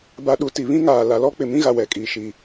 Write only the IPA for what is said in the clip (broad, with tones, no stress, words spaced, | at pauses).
ba˨ɗu˨ ti˨βĩ˦ŋaː˨ la˨lɔ˦k͡pɪ˨ mĩ˦ɣa˨ wɛ˨kʼi˨ʃi˨